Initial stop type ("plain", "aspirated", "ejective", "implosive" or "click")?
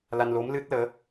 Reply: plain